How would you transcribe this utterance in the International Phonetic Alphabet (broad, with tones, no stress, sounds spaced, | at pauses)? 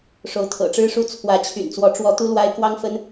ʂ o˧˥ ʊ̯ t̪ʰ ɤ̰˨˩ ʈ͡ʂ ɻ̩˥ ʂ u˥˩ t͡sʰ w ä˧˥ t͡ɕʰ y̰˨˩ n t͡s w ɔ˧˥ ʈ͡ʂ w ɔ˧˥ t̪ u˥ l w a˥ ɪ̯ k w ɑ˥ ŋ f ə˥ n